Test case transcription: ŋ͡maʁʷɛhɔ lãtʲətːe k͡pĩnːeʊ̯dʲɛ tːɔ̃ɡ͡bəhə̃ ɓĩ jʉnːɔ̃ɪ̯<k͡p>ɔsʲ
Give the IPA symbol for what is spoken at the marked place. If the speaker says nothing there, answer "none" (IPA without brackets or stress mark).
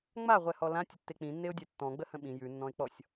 k͡p